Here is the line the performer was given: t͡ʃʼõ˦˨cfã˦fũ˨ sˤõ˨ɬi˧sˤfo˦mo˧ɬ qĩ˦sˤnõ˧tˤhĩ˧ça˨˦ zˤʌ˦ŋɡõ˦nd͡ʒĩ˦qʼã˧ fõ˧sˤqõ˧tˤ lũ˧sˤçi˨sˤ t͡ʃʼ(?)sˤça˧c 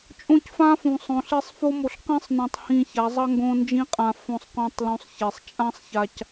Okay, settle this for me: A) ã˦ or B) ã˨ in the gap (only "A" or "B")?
A